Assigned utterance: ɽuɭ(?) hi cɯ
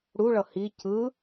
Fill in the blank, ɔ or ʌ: ʌ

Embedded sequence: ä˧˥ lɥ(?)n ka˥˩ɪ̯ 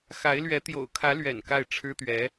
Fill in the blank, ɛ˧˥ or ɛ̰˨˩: ɛ̰˨˩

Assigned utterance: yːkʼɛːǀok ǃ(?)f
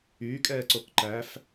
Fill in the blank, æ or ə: æ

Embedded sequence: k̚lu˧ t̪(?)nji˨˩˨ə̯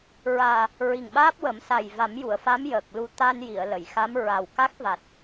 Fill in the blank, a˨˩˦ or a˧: a˧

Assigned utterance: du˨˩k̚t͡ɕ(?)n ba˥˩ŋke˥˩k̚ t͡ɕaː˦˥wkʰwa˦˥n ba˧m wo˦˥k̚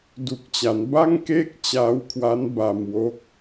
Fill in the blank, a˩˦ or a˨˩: a˩˦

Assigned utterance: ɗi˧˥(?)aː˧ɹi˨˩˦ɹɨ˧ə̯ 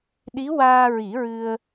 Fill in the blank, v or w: w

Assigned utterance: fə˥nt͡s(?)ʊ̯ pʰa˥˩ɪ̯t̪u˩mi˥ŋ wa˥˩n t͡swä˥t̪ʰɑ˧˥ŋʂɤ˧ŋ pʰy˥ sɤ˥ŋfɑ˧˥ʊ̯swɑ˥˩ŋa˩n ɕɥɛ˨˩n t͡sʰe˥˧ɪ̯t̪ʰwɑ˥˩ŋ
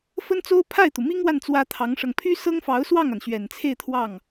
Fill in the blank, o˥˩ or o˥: o˥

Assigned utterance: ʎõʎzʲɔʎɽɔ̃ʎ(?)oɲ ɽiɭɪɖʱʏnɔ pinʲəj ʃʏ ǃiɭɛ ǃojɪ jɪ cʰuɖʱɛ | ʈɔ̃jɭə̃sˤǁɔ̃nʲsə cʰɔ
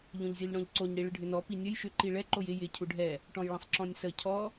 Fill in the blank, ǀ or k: ǀ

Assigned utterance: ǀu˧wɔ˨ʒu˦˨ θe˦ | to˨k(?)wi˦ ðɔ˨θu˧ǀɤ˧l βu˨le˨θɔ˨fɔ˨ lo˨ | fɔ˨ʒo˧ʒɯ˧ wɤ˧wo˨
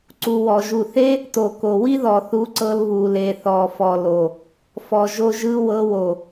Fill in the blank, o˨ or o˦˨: o˨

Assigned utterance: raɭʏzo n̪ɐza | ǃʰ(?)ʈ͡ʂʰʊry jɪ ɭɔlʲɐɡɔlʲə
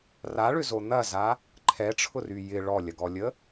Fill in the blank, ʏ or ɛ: ɛ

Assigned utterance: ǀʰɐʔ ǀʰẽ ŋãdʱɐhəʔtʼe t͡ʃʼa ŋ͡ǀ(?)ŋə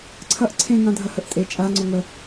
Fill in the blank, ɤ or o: o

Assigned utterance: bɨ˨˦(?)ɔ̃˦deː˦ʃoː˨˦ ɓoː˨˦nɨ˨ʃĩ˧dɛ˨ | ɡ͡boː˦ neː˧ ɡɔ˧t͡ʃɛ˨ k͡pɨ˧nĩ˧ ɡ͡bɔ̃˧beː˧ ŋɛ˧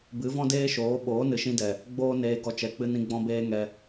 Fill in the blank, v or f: v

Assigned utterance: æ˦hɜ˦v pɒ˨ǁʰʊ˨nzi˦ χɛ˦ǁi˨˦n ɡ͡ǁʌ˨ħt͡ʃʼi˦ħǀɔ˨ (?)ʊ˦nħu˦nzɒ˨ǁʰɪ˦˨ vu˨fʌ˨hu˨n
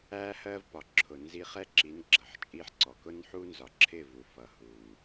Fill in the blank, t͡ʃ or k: k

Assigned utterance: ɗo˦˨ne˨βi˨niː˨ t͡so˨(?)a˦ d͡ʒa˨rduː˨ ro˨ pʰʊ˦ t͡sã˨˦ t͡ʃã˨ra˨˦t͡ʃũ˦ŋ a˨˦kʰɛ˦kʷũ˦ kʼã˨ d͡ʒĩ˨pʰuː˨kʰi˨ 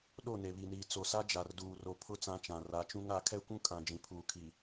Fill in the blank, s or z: s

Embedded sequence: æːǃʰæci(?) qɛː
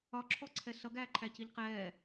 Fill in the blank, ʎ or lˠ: ʎ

